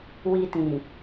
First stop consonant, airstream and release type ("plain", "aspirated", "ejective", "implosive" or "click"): plain